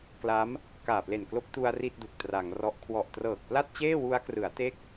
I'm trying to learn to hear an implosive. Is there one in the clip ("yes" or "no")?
no